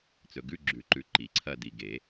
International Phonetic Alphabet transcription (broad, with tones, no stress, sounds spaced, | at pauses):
t͡s ɵ˨ ɡ ʉ˧˥˧ ɡ͡ǁ ʉ˨˩˦ ǃ ʉ˨ ǃ i˨˩˦ ǀʰ ɐ˥˧ d i˨ ɡ e˨˩˦